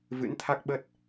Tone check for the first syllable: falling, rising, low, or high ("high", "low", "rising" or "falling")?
rising